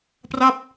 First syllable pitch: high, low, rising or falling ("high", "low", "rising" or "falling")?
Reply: falling